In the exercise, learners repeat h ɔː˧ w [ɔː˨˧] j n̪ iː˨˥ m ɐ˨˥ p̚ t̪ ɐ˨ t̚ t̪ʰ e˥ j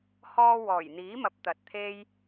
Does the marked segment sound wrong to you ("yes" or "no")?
yes